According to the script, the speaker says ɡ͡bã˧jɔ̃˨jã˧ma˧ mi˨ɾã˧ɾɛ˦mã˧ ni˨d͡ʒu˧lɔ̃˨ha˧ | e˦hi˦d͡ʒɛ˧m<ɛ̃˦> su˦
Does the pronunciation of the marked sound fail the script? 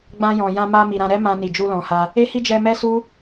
yes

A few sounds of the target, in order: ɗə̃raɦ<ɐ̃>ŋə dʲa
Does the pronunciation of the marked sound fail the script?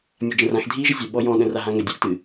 yes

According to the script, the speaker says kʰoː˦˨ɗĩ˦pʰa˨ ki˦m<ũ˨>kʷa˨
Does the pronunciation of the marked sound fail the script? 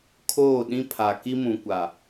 no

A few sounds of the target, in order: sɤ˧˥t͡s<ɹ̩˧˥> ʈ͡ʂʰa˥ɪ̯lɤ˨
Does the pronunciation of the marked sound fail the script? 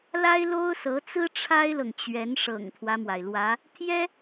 yes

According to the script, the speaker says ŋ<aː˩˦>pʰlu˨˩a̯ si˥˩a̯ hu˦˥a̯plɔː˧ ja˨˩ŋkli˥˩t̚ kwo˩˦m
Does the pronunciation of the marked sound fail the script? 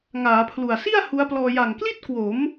no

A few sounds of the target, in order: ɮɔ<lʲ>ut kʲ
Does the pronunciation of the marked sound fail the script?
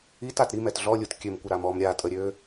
no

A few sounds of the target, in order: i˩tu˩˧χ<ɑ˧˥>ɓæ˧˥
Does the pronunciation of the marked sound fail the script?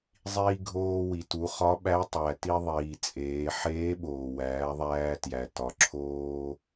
yes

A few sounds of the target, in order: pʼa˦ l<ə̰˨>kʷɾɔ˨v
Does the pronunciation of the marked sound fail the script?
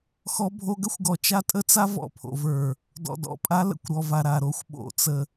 no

